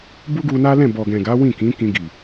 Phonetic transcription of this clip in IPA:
b u˦ ɡ u˧ n a˦ l ɛ̃˦˨ b ɔ˨ ɡ ɛ̃˨ ɡ a˨˦ w ĩ˦˨ k ĩ˨˦ k ĩ˧ ɡ i˨

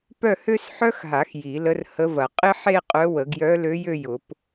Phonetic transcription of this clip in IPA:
p œ˥˧ h ø˥ s ħ œ˥ x ɦ a˨˩˦ x j i˨˩˦ l ə˧˥ r h ə˧˥ v ɐ˨˩˦ qʼ ɪ˥ ħ e˥˧ qʼ œ˧˥ w ə˨˩˦ ɡ j œ˧˥ l ø˧˥ j ø˥˧ j ʊ˨˩˦ p

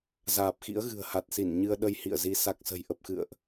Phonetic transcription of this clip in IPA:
z aː˨˩ p̚ x ḭ˧˥ ə̯ ɣ ɨ̤˨˩ ə̯ h a˨˩ t̚ s i˧˩ n ɲ ɨ˧ ə̯ ɗ ə˧ j h ḭ˧˨ ə̯ z i˨˦ s a˨˩ k̚ s ə̤˨˩ j ʔ ə˨˩ p̚ x ɨ̰˧˨ ə̯ ʔ

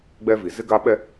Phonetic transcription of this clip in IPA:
ɡ͡b ɛ˦ v i˨ z ɪ˦ ɡ a˦ ɓ ɛ˦

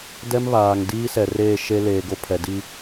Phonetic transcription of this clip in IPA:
d ɛ˦ m β aː˨ ŋ d iː˦ s ɛ˨ r eː˦˨ ʃ e˦ l eː˨ ɡ o˦ pʰ ɛ˨ d i˦

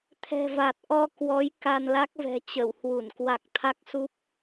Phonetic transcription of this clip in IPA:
t̪ʰ ɛ̤˨˩ v a˨˩ t̚ ʔ ɔ˧ k w ɔ˨˦ j k a˧ n l a˦˥ k̚ v ɛ̤˨˩ t͡ɕ ə˧˩ w h w u˧˩ n k w a˨˩ k̚ t̪ʰ a˦˥ k̚ s u˦˥ p̚

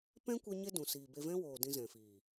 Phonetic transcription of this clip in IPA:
p ɛ̃˦ kʷ ɛ˦ ɲ e˦ d ũ˨ s iː˨ b e˧ v ɛ̃˦ w oː˨ d ĩ˧ z ɛ̃˨ f iː˨

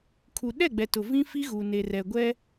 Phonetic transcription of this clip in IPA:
kʰ u˨ ɗ ɛ˦˨ ɡ͡b ɛ˨ t ʊ˨ v ĩ˦ f i˦ ɣ uː˨ n e˨ r ɛ˨ ɡʷ ɛ˦

